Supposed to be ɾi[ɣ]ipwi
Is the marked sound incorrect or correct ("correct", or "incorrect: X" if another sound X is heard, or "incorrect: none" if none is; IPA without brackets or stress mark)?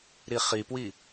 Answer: incorrect: χ